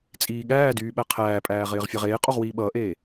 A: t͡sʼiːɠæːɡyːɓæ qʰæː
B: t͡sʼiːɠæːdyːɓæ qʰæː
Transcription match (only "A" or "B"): B